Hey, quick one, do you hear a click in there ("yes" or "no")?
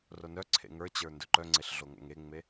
yes